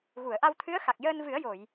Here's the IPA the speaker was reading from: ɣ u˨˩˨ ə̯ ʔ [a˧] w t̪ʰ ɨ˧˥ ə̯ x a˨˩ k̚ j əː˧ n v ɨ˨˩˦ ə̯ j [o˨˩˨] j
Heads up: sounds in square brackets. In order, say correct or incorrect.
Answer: correct, correct

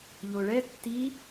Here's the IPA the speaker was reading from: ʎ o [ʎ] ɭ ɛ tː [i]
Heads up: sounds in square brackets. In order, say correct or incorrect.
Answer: incorrect: none, correct

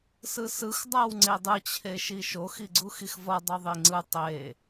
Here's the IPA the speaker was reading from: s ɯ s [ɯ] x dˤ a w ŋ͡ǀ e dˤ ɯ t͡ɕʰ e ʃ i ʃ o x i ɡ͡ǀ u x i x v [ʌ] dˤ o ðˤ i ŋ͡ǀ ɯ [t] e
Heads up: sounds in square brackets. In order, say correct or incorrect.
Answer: correct, correct, incorrect: tˤ

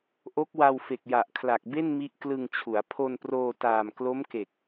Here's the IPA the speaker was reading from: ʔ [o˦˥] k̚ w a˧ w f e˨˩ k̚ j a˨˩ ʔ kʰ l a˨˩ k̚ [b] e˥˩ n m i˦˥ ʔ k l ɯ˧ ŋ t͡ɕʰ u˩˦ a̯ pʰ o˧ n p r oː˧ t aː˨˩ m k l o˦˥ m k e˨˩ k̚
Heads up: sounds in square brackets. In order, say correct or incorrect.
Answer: correct, correct

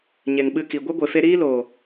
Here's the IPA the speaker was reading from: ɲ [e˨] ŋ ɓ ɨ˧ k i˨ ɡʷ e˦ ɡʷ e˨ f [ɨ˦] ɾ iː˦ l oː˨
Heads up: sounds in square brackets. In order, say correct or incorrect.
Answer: correct, incorrect: e˦

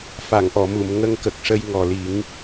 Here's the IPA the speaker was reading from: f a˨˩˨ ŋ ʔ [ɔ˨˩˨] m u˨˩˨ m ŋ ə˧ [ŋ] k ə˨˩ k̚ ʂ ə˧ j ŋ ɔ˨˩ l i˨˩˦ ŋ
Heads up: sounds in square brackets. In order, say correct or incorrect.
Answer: correct, correct

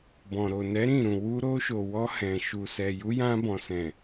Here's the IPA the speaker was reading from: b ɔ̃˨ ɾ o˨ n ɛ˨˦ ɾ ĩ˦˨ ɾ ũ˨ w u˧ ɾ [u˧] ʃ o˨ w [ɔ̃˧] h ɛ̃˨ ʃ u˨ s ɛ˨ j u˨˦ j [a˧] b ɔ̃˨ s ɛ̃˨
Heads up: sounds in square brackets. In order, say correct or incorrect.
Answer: incorrect: o˧, incorrect: ɔ˧, incorrect: ã˧

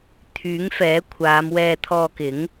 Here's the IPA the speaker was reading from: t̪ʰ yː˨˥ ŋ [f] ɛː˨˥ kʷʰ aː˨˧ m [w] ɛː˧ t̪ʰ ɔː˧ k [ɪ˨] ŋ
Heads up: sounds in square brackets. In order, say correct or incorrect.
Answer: correct, correct, incorrect: ɪ˨˥

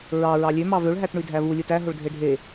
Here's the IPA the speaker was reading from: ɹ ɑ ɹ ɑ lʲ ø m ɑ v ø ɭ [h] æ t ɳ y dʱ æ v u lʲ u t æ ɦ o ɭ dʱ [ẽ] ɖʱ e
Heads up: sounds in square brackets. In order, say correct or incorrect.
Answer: incorrect: ɦ, incorrect: e

